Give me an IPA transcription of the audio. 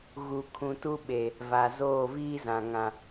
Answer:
ɣ u˨ kʰ ũ˨ t u˦ ɓ e˨ | v a˨ z oː˦˨ v iː˦ z ã˨ ŋ ã˨

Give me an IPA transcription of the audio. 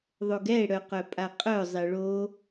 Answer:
ðˤ o ɡ ɛ e̯ ɽ œ q œ pʼ a qʼ œ zˤ e ɭ o

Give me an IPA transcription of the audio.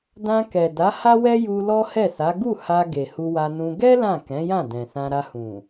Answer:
d ã˧ k ɛ˨ d a˨˦ h a˦ w ɛ˦ j u˧ l ɔ˦ h ɛ˦˨ s a˨˦ ɡ u˦˨ h a˧ ɡ e˨ h u˧ w a˧ n ũ˧ ɡ ɛ˦ l ã˦˨ k ɛ̃˨˦ j ã˦˨ d ɛ̃˨ s ã˧ ɾ a˧ h ũ˨

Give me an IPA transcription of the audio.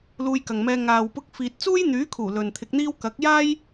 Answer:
l uː˧ j k ɐ˨ ŋ m ɛː˧ ŋ aː˨ w p ʊ˧ k̚ f iː˨ t̚ t͡s uː˥ j n̪ yː˨˥ kʰ uː˨˩ l ɵ˨ n t̪ʰ ɪ˧ k̚ n̪ iː˥ w k ɐ˨˥ k̚ j aː˥ j

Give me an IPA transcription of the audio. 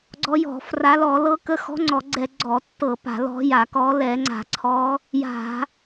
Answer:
ɡ͡ǀ ɔ˧˥ j ɔ̤˧˩˧ f r a˧˥ l ɔ˧˩˧ l ɤ˧˥ k ə˧˥ x ɔ̤˧˥ ŋ͡ǀ ɔ˧˩˧ ɡ͡ǀ ɛ˧˩˧ ɡ͡ǀ ɔ˧˩˧ tː ɤ˧˩˧ p a̤˧˩˧ l ɔ̤˧˥ j a˧˩˧ k ɔ˧˥ l ɛ˧˩˧ ŋ͡ǀ a̤˧˩˧ ǀʰ ɔ˧˥ | j a̤˧˩˧

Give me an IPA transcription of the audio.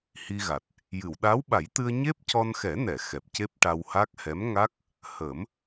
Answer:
h i˧ ɣ a˨˩ t̚ | j ɨ˨˩˨ w ɗ a˧˥ w ɓ a˨˩˦ j t̪ ɨ˧ ə̯ ɲ e˦˥ p̚ c ɔ˧ n x ɛ˨˩˦ n ɛ˨˩˨ x ɛ˨˩ p̚ c e˦˥ p̚ ʈ a˧ w h a˦˥ k̚ h ɛ˧˥ m ŋ a˦˥ k̚ | h ə˨˩˦ m

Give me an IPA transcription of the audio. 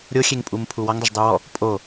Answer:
ɾʲ o xʲ e ŋ pʼ u m pʰ u w ɔ ŋ dˤ ʊ ʒ dˤ u w ɔ | pʼ o

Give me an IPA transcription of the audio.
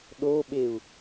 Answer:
ɗ o ɓ e u̯

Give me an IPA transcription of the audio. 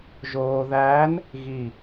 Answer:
ʒ oː˧ ð æː˧˥ n | ɣ i˧˩

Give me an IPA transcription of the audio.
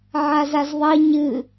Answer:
ʕ a z a z ðˤ ɐ ɲ ɨ

